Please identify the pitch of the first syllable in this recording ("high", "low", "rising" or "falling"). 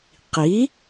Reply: rising